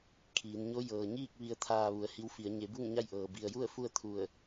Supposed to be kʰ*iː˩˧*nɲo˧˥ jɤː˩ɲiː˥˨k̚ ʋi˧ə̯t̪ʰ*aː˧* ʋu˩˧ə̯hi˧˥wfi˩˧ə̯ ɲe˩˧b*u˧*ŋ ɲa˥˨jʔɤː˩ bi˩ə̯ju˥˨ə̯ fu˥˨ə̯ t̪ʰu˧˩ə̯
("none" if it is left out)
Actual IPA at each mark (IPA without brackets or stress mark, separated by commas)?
iː˩˧, aː˧, u˥˨